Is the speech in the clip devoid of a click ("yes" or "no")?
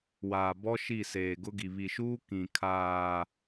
yes